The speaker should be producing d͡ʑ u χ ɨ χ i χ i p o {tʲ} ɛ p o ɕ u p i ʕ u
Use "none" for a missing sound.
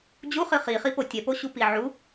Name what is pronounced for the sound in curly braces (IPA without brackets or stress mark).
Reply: tʲ